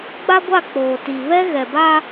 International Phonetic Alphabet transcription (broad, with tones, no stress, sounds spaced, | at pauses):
ɡ͡b a˦ ɡʷ a˦˨ k͡p oː˨ t i˨ β ɛ˦ ɣ ɛ˨ b a˦